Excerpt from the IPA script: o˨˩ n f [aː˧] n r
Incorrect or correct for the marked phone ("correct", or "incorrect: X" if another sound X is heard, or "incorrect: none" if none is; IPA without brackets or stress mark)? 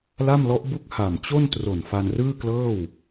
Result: incorrect: a˧